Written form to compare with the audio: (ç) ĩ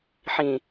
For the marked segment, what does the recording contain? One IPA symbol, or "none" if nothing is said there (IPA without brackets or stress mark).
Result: ħ